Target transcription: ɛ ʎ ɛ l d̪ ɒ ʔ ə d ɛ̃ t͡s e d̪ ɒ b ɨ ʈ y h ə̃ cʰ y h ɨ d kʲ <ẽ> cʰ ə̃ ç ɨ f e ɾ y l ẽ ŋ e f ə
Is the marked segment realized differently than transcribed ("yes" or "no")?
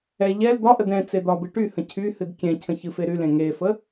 yes